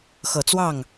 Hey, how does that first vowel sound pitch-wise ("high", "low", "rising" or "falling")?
low